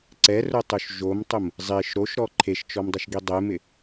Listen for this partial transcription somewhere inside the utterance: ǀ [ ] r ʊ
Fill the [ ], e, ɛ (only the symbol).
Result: ɛ